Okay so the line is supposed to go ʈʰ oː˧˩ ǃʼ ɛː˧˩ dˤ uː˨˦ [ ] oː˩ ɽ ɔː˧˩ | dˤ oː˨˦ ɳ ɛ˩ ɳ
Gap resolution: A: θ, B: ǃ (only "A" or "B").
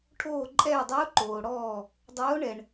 B